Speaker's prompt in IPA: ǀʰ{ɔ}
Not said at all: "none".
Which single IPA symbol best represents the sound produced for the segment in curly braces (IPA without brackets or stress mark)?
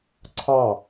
ɑ